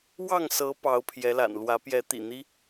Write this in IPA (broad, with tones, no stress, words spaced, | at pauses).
wɑ˥˨ŋsɤ˨˦ pɑ˨˦ʊ̯pʰjɛ˨˦la̰˨˩n lwä˨˦pjɛ˨˦t̪ḭ˨˩n̪i˦